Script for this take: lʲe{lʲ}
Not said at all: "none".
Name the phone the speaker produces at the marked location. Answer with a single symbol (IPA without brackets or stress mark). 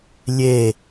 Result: none